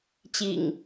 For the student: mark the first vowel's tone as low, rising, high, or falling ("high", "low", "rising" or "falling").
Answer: low